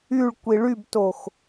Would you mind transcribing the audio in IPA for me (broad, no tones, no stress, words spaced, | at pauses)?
yɭkʷi ɭybtox